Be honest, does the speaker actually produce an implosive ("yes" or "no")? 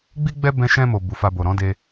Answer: no